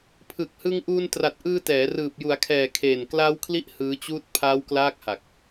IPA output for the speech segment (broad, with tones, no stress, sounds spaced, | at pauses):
pʰ ɯ˨˩ k̚ h ɯ˧ ŋ ʔ uː˧ n t r a˨˩ t̚ ʔ ɯː˧ t ɛː˩˦ r ɯː˨˩ p̚ j u˩˦ a̯ kʰ ɛː˨˩ kʰ eː˨˩ n k l aː˦˥ w kʰ l i˦˥ ʔ h ɯː˦˥ t͡ɕ uː˥˩ t̚ pʰ aː˦˥ w k l aː˦˥ k̚ h a˨˩ k̚